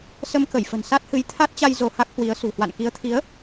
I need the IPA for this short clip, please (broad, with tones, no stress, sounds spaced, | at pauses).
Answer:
s ə˧ m k ə˧˩ j f ə̤˨˩ n s a˦˥ t̚ h ɨ˨˦ j t̪ʰ a˦˥ t̚ t͡ɕ a˧ j z o˧ h a˦˥ k̚ h w i˨˦ ə̯ s ṳ˨˩ h w a̰˧˨ n k i˨˦ ə̯ t̪ʰ i˨˦ ə̯